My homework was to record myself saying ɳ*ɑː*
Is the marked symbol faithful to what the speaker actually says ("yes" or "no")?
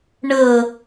no